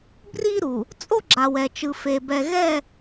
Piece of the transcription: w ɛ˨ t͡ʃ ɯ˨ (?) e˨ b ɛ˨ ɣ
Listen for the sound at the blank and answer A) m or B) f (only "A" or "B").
B